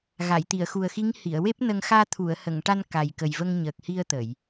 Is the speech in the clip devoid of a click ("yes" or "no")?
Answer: yes